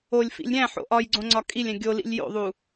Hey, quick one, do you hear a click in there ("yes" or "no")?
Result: yes